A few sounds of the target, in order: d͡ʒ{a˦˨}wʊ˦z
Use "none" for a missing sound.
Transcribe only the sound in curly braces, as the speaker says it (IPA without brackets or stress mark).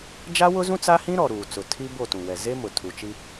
a˦